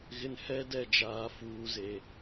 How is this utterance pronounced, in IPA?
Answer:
ɣ ɪ˨ n h ɛ˦ d ɛ˦˨ d͡ʒ aː˨ f uː˨ z e˨

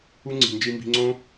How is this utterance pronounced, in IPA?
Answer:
u˦ ŋ͡ǀ i̤˨ n d͡ʒ i˧ m b i̤˧ ŋ͡ǀ õ˦

